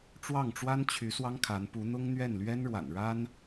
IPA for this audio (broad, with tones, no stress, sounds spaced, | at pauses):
ʈ͡ʂ w ɑ˥˩ ŋ ʈ͡ʂ w a˥ n t͡ɕʰ y˧˥ s w ɑ˥ ŋ kʰ a˧˥ n p u˧˥ n̪ ʊ˥ ŋ n̪ ɥ ɛ˥˩ n l ɥ ɛ˥ n ɻ w a̰˨˩ n ɻ a˥ n